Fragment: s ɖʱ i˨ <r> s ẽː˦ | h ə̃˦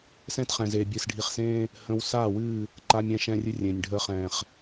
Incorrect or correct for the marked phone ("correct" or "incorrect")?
incorrect